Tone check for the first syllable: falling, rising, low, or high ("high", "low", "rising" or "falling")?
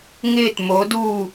falling